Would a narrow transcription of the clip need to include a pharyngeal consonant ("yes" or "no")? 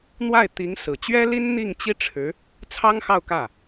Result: no